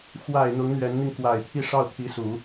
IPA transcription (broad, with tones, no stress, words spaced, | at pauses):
xwa˨˩ɪ̯ n̪ʊ˧˥ŋn̪ɥɛ˧˥nn̪i˧ŋ kwa˨˩ɪ̯ t̪ʰi˥˧ʂɑ˥˩ʊ̯t̪ʰi˧˥su˨˩˦